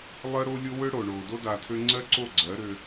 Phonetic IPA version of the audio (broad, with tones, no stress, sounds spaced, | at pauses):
lˠ ɜ˦ ɾ o˦ lʲ o˦ w ø˦ ɽ oː˨ ɳ oː˨ d o˦ d a˧ tʰ ø˦ ŋ͡ǀ ɜ˦ ǀ o˦˨ ɡ͡ǀ ɜ˨˦ ɾ ø˧